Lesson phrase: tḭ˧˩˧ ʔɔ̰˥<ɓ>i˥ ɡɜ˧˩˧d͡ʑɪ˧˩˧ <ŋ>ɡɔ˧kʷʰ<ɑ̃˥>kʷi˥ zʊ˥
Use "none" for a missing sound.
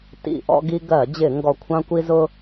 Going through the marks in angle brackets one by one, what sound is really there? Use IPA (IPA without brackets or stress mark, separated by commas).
ɡ, ŋ, ɑ̃˥